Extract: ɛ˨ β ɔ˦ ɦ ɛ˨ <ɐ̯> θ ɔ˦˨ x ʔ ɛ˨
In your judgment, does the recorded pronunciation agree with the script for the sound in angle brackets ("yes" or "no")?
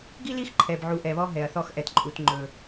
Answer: yes